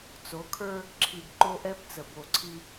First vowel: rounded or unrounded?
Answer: rounded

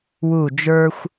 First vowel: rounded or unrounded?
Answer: rounded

